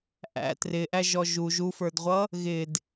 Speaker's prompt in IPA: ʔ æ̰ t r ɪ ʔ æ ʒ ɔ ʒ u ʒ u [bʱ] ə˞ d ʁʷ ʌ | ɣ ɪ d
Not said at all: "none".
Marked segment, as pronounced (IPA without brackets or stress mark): f